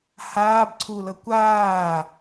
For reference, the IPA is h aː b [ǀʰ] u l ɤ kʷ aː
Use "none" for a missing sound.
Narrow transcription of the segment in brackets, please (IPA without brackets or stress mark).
ǀʰ